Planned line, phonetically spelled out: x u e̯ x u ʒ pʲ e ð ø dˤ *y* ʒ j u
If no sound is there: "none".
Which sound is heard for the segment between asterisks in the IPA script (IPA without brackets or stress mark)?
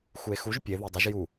y